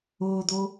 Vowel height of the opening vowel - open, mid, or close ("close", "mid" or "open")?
close